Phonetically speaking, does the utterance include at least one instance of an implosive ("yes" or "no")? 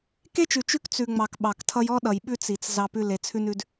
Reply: yes